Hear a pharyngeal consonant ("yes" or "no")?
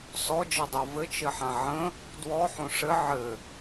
yes